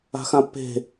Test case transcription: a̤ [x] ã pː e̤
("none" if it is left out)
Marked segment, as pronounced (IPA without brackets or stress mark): x